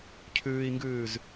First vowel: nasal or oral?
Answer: oral